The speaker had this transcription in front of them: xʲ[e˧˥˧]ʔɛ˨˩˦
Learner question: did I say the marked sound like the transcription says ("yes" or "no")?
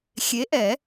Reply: no